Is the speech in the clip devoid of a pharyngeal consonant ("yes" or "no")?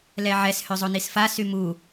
no